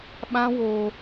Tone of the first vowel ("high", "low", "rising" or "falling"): high